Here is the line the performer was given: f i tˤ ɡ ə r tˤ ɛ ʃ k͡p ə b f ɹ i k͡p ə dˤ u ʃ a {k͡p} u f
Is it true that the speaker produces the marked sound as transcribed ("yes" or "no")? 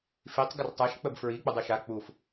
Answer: yes